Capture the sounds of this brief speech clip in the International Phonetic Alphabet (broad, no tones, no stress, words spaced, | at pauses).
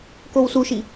kowsuʃi